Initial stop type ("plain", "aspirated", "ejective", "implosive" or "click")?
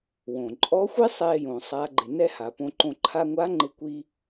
click